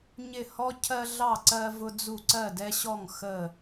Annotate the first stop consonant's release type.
aspirated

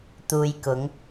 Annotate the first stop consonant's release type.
plain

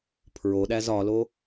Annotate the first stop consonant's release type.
aspirated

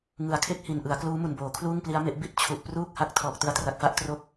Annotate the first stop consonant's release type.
aspirated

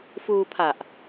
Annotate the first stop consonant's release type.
aspirated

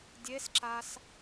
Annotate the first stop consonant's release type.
plain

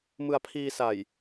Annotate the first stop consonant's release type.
aspirated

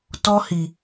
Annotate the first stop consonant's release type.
plain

